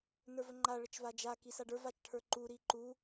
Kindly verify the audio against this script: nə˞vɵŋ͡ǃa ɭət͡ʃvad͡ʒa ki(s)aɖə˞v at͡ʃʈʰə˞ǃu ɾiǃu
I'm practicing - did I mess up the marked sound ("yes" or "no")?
no